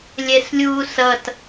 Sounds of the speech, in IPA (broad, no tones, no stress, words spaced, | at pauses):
lʲɛslʲuːsʌt